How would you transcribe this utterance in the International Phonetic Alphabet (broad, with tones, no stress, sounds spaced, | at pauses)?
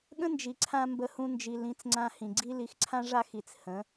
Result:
ɠ ə̃˦ n d͡ʒ i˨ ǀʰ ã˧ m b ə˦ h ũ˦ n d͡ʒ i˧ l ĩ˨˦ t͡s ŋ͡ǀ ã˧ h ĩ˨ ɡ͡ǀ i˦ l i˧ x ǀʰ ã˦ ʐ a˦ x i˨ t͡s h ə̃˨˦